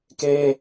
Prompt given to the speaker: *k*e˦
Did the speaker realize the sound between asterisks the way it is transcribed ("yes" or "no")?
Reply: yes